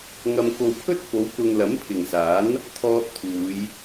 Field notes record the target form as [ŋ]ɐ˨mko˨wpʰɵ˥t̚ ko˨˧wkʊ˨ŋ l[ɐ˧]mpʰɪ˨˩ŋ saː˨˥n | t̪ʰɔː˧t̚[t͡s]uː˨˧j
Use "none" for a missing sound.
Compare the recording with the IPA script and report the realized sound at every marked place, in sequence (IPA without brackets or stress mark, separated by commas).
ŋ, ɐ˨˥, t̪ʰ